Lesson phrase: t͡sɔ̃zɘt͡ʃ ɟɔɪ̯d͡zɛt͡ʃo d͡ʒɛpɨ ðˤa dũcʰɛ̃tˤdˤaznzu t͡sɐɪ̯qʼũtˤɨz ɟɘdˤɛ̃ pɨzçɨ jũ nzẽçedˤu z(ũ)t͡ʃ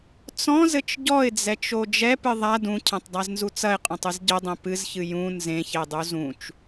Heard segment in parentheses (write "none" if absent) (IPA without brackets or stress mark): ũ